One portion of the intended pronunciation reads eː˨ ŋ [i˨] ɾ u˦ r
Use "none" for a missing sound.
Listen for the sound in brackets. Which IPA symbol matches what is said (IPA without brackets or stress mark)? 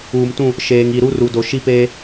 i˨